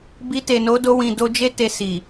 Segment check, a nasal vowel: present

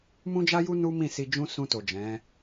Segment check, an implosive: absent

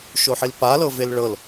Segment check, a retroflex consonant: present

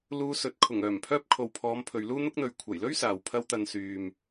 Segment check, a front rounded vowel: present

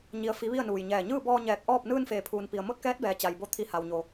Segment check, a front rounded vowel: absent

